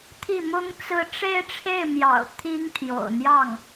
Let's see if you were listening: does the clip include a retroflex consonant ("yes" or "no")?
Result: yes